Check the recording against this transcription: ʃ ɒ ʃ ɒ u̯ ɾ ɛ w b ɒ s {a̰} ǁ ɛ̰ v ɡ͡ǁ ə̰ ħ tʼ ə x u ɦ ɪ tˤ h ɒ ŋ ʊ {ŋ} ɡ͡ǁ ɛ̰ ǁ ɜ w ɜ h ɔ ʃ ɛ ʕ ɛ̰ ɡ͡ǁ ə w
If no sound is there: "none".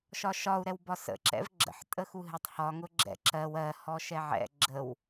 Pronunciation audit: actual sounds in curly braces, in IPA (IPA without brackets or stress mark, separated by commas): ə̰, none